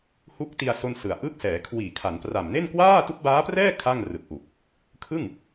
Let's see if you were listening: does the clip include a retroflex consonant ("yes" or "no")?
no